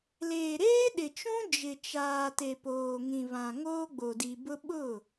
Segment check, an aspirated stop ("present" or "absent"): absent